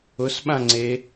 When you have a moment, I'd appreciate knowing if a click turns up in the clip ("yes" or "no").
yes